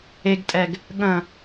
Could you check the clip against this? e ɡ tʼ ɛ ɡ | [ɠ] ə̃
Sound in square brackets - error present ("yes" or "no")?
no